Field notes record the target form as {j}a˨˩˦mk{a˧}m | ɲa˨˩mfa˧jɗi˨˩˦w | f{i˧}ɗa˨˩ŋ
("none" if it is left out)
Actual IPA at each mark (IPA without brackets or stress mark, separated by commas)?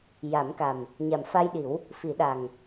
j, a˨˩, i˨˩˦